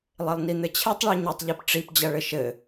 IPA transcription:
lˠ e lˠ n i n̪ ɘ t͡ɕʰ e tˤ ɭ i ɲ ɨ tˤ ʎ ɛ p ʈ͡ʂ i p d͡ʑ ɐ ɭ ɘ ʃ ɘ

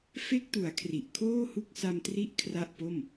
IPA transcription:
f e˦˥ k̚ t u˩˦ a̯ kʰ r i˨˩ ʔ kʰ oː˥˩ h u˥˩ k̚ s a˧ m t r i˦˥ ʔ kʰ r a˥˩ ʔ p o˥˩ m

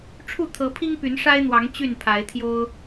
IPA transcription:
ʈ͡ʂʰ u˥˨ t̪ʰ ɤ˨˦ pʰ i˦ ŋ p y˨˦ n ʂ a˦ ɪ̯ n̪ w ɑ˨˦ ŋ t͡ɕ y˥˨ n pʰ a˨˦ ɪ̯ t̪ʰ j o˦ ʊ̯

